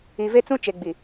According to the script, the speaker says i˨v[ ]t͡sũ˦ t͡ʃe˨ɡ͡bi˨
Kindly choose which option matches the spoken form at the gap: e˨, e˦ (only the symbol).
e˦